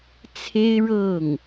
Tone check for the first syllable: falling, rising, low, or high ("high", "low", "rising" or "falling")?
high